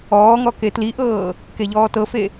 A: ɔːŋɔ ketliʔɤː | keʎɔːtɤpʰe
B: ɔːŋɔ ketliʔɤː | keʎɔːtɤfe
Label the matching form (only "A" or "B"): B